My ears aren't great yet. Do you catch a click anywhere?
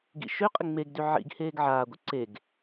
yes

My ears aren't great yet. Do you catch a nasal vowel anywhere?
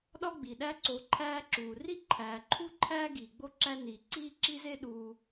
no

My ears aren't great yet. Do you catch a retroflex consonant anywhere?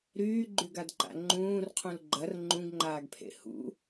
no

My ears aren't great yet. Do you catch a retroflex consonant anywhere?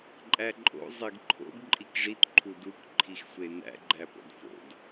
yes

